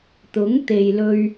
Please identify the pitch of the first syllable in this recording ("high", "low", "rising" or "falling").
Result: rising